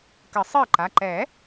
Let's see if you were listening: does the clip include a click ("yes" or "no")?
yes